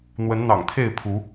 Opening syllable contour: rising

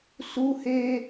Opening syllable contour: high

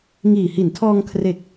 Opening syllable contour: low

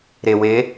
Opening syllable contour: low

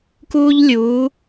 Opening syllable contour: high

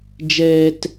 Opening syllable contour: high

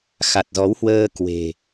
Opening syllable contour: low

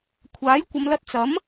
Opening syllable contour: rising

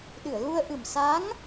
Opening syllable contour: low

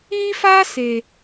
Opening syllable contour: high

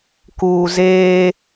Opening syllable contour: low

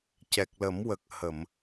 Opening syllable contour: low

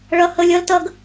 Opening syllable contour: high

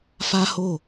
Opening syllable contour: high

